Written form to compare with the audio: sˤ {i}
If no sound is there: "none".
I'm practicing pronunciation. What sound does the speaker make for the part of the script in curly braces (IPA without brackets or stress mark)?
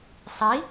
i